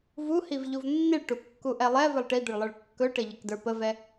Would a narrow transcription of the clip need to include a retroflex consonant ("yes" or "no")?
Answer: yes